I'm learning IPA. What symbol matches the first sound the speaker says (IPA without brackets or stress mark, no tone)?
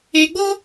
e